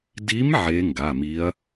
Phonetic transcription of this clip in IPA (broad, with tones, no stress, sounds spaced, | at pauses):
d i˧˥ m ʕ e˧˥ ŋ ɡ a˩˧˩ m i˧˥ ɐ̯